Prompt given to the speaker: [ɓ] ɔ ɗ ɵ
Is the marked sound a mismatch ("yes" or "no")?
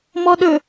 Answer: yes